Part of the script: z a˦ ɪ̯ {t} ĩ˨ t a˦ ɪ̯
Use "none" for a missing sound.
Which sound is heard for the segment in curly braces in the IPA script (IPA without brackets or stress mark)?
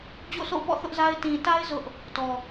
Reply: t